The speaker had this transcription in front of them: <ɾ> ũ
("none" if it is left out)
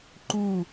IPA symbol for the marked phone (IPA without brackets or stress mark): ǃ